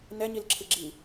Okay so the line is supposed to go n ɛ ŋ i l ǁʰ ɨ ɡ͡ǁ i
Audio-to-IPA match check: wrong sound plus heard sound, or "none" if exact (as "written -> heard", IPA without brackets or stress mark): ŋ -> ɲ